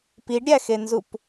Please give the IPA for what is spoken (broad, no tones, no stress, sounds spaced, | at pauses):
p i ɖ ɾʲ æ x e n z u p